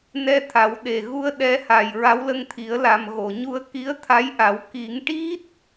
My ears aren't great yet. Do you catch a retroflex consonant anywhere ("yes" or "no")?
yes